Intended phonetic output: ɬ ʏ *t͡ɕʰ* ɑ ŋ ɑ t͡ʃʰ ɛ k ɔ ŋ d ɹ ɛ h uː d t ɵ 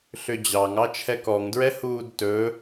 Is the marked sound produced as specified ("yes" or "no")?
no